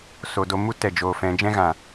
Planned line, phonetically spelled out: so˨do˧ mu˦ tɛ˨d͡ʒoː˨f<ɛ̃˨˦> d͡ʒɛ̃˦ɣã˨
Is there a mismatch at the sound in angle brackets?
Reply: no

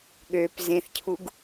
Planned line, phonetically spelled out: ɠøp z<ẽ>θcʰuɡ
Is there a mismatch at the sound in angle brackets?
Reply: no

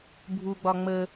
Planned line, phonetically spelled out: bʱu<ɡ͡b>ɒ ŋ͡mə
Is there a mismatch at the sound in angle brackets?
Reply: no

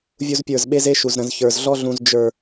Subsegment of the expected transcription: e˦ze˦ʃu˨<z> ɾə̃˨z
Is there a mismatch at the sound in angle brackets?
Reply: no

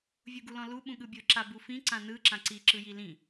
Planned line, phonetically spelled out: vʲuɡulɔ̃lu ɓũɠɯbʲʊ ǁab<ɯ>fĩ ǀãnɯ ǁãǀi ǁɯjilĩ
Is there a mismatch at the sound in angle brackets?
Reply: yes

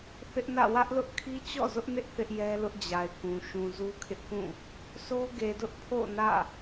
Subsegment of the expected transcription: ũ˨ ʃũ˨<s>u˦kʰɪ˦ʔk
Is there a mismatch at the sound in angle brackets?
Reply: yes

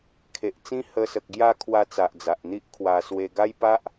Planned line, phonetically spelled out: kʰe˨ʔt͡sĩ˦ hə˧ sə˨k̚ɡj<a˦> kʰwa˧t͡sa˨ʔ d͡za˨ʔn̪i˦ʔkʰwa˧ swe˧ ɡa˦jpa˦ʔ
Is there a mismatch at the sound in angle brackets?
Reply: yes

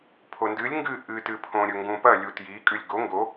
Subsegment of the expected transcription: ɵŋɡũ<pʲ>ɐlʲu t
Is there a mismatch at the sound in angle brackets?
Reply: yes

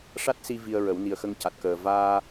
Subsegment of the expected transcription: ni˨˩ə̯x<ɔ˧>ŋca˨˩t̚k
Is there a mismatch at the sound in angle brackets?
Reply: yes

